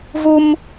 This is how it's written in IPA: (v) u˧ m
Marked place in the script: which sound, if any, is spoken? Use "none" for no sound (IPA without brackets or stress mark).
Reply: v